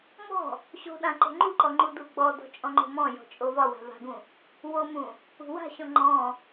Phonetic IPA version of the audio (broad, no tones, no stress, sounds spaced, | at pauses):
m ɔ̤ | ɕ o̤ ɗ ã ǃ o̤ ŋ͡ǃ u ǃ ɔ ŋ͡ǃ u d u ɡ͡b ɔ d ɔ̤ t͡ʃʼ ɔ̃ ŋ͡ǃ o̤ m ɔ̃ j ɔ̤ t͡ʃʼ o v ɒ w a̤ v a̤ ɡ ũ | w o m ũ | ṳ w a̤ ɕ ɔ̃ ŋ͡ǃ ɔ̃